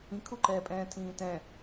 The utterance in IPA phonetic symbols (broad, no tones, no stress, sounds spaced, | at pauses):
ĩ kʰ u ǃ ɛː pʼ ɛ̃ː tʰ ĩː t ɛ̃